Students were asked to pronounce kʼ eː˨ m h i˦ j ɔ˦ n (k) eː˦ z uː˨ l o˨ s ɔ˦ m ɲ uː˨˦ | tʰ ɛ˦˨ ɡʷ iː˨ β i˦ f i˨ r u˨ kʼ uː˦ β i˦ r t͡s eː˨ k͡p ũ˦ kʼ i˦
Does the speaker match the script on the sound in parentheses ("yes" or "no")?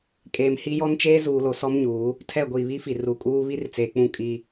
no